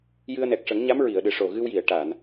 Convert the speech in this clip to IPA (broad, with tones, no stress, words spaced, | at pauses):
jɨ˧ə̯nɛ˨˩k̚ʂə˨˩˦ŋɲa˧˥m ɹi˨˩˨ə̯ɗɨ˨˩ ʂo˨˩ ɣɨ˧wji˨˩˨ə̯ ʈa˨˩˨n